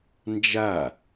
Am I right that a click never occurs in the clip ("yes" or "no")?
yes